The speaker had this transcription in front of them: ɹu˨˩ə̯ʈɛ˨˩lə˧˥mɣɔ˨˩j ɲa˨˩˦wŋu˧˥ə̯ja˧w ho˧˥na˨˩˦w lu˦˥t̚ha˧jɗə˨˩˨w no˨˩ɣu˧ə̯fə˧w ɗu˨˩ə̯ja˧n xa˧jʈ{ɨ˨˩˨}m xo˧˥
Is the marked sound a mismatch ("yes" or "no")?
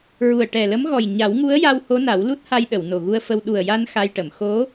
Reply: yes